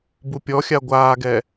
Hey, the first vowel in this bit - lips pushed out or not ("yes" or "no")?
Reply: yes